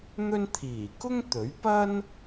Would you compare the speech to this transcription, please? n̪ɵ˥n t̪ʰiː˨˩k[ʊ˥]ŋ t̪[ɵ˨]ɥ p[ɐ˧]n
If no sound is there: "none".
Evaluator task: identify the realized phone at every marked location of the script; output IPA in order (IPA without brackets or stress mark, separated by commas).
ʊ˥, ɵ˨˥, ɐ˥